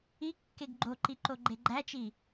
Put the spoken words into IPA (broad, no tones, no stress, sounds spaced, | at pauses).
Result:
i kː e ɡ ɡ͡ǃ o ǃ i ǃ o ɡ͡ǃ e ɡ͡ǃ æ t͡ʃ i